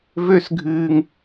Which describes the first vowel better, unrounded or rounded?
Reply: rounded